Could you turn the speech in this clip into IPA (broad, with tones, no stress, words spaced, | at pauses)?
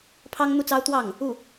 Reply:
pʰɑ˥ŋn̪u˥˩t͡sɑ˥ʊ̯ t̪wɑ˥˩ŋ | u˥˩